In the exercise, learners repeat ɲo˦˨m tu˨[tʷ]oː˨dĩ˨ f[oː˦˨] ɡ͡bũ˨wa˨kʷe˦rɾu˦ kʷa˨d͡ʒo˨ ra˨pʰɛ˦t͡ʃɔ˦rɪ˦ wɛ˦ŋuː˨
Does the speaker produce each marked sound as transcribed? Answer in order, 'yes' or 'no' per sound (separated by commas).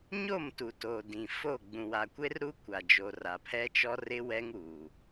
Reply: no, no